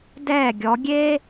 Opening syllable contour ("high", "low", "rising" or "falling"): falling